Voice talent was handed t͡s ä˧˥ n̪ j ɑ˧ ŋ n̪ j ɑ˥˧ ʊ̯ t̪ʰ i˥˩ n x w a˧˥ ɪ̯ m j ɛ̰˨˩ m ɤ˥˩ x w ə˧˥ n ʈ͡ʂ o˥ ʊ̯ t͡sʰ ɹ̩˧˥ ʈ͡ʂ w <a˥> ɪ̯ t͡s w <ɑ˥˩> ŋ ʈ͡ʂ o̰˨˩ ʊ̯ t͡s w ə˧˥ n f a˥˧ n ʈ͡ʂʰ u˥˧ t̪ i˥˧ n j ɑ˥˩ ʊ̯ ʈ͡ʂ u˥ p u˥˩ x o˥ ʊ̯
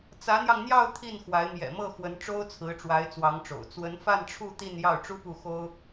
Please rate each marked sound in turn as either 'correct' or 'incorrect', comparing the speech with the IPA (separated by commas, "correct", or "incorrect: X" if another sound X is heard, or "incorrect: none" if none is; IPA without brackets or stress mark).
incorrect: a˧˥, incorrect: ɑ˧˥